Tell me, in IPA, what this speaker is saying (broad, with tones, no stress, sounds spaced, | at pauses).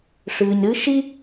ʂ ɨː˩ ɲ ɾ ɨː˥ ʃ i˥